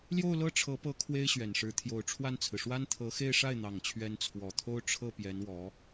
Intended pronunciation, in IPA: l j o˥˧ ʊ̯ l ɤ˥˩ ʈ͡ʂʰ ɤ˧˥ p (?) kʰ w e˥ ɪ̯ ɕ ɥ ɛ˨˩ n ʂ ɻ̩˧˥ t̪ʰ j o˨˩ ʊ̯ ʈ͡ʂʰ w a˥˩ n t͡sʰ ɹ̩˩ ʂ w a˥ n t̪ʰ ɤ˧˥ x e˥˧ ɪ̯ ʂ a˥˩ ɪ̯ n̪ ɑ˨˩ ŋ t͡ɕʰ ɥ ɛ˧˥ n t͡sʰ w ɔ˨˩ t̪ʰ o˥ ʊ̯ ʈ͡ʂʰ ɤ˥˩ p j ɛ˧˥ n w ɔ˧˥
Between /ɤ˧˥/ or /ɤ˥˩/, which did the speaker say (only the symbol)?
ɤ˧˥